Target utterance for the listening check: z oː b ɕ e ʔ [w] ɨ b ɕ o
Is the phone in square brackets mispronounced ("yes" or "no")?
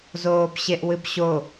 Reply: no